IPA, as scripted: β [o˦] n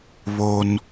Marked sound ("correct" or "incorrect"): correct